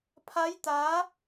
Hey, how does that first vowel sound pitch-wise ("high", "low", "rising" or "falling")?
rising